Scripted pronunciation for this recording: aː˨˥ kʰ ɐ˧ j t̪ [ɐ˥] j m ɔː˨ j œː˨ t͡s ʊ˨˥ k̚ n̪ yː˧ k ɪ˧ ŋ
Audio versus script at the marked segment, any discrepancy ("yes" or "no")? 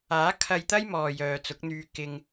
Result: no